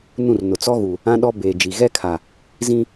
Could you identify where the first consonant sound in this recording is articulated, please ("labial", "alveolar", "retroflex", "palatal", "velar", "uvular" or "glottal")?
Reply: alveolar